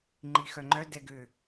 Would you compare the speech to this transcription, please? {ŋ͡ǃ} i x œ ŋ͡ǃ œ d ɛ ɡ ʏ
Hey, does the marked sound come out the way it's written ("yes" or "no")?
yes